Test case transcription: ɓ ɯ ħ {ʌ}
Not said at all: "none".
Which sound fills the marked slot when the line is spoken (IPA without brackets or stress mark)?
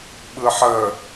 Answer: ə